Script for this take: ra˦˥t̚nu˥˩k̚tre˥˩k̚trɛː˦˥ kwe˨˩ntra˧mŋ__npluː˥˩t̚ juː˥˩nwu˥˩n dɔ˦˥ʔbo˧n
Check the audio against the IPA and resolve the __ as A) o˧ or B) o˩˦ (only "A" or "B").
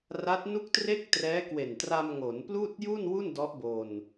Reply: B